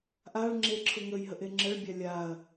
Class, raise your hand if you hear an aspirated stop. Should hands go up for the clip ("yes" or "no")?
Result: yes